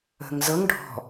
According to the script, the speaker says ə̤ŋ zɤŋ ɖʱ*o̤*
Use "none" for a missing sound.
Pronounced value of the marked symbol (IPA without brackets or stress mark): ɔ̤